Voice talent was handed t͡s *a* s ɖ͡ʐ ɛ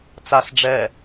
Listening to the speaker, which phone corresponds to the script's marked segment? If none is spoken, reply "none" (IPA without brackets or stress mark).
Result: a